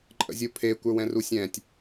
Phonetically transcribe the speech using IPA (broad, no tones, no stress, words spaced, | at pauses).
ǃʼə̰zʲupʰe kʷə˞wɛ̃rusʲɛ̃tʲ